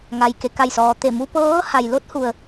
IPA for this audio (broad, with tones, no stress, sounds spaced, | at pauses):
ŋ a˩ j k e˩ k a˧˩ j s ɔː˩ t̪ e˧˩ m u˧ p ɤː˧˥ h a˩ j l o˧˥ t̚ h u˩ ə̯